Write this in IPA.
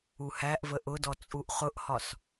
u h æ ʔ v ə ʔ ʊ d ɔ t͡sʼ u ʔ χ ʊ ʔ h ɒ s

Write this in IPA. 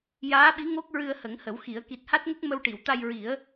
j aː˧˥ ɓ i˧˥ ŋ o˦˥ k̚ ɹ ɨ˧ ə̯ h ə˨˩˦ ŋ h ə˨˩˦ w x i˨˩˦ ə̯ k i˨˩ t̚ h a˦˥ t̚ ŋ ə˦˥ k̚ m ə˧ w ʈ i˨˩˨ w t̪ a˧ j ɹ i˨˩˦ ə̯

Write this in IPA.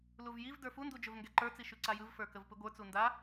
l u v j i v d ə˞ f u n d u d͡ʒ ɵ v ŋ ɡ ɛ ǃ ə˞ t͡s i ʃ ʉ ǀ a j ɯ v f ə˞ k ə v p ɯ ɡʷ ə˞ t͡s u n d a

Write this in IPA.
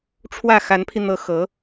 ʈ͡ʂʰ w ä˥˩ x a˧˥ n pʰ i˧ n̪ ɤ˧˥ x ɤ˧˥

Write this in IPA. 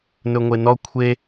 n ɵ ŋʷ e n ɔ kʷʰ e

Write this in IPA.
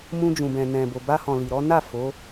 m ũ˧ d͡ʒ ũ˨ b ɛ̃˨ n ɛ̃˨ b o˨ b a˧ h ɔ̃˨ l i˨ ɾ ɔ˨˦ n a˦˨ f o˨˦

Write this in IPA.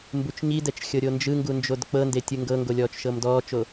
m b u t͡ʃ ɲ i d ɛ t͡ʃ xʲ ɤ ɾʲ o n d͡ʒ ɯ ŋ ɡ u n d͡ʒ o d k͡p ɤ n d e tʲ ɯ ŋ ɡ ɤ ŋ ɡ o lʲ ɔː t͡ʃ ʃ ɤ m d ɔː t͡ʃ o

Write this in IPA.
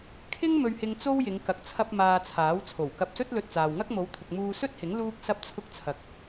kʰ ɪ˥ ŋ m ɵ˧ ɥ h ɪ˧ ŋ t͡s o˥ w j ɪ˨˧ ŋ k ɐ˨ k̚ t͡sʰ ɐ˧ p̚ m aː˧ t͡sʰ aː˨˥ w t͡sʰ o˨˩ w k ɐ˧ p̚ s ɵ˥ t̚ l ɵ˧ t̚ t͡s aː˨ w ŋ ɐ˥ k̚ m o˨˧ w t̪ʰ ʊ˨ k̚ m uː˧ s ɵ˥ t̚ h ɪ˨˥ ŋ l uː˥ k̚ s ɐ˥ p̚ t͡sʰ ʊ˥ k̚ t͡sʰ ɐ˧ k̚

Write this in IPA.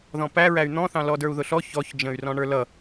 ð ɔ̃ p æ ɹ æ y̯ n̪ ɔ̃ θ ɑ̃ l ɔ d ə˞ u̯ ð ʊ ɬ ɔ ç ɔ ç d͡ʒ ə̃ y̯ r ɔ̃ ɳ ə˞ l ʌ

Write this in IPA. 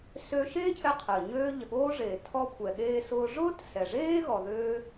s ø˧ ʃ eː˥ cʰ ɛ˧ qʰ əː˩ ɲ øː˧ ʎ ə˩ ɠ oː˧ ʐ eː˩ tʰ ɔ˧ kʷʰ ɛ˩ ɠ eː˧ s ʊː˧ ʐ ʊː˥ t s ɛ˩ ʐ eː˥ ɣ ɔ˩ ð øː˧

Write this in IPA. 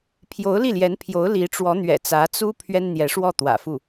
pʰ j o˧˥ ʊ̯ l i˥˩ l j ɛ˧˥ n pʰ j o˧˥ ʊ̯ l i˧˥ ʈ͡ʂ w ɔ˧˥ n̪ ɥ ɛ̰˨˩ t͡s ä˧˥ t͡s u˥ pʰ ɥ ɛ˥ n n̪ j ɛ˧˥ ʂ w ɔ˥˩ t̪ w ä̰˨˩ f u˥˩

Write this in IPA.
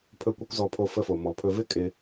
pʰ ɵ˦ kʷ ə˦ kʷ z ɔ˧ pʰ o˧ f ə˦ f o˧ m ɔ˧ pʰ ɵ˧ v ɪ˦ kʼ ɪ˧

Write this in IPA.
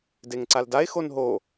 d e ŋ ǀ a l d a e̯ x o n ɦ o

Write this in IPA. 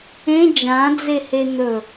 ẽ d͡ʒ ã d͡z e h e n̪ ɵ

